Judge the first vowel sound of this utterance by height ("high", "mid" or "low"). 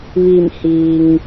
high